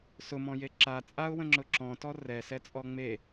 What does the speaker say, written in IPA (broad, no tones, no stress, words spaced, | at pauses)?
sʊmɔ̃je ǁa t͡sʼaʊ̯wə̃ŋ͡ǁʊ ǁɔ̃tɔ rɛsɛt͡sʼɔ ŋ͡me